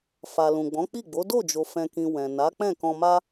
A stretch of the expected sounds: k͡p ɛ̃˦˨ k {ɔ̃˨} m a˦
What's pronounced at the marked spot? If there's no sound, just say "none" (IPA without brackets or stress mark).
ɔ̃˧